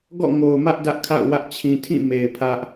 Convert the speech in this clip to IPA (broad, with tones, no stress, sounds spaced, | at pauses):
ɡ ɔ̰˦˨ ŋ o˨ ʊ̯ m ä˦ ʔ d ä˦ ʔ kʰ a̰˦˨ ʊ̯ w ä˦ ʔ t͡ɕʰ ĩ˨ tʰ ĩ˦˨ m e˨ ɪ̯ pʰ ä˦ ʔ